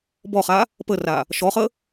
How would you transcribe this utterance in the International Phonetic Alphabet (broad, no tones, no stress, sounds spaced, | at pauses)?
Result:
b ɔ χ a | p ə r a | ʃ ɔ χ ə